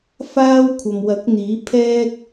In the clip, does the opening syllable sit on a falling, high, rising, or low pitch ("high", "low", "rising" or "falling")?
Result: high